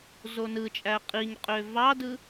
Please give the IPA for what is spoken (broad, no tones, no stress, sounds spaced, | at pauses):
z o n ɯ t͡ʃʼ æ qʼ i ɲ qʼ ø v ɑ d ɯ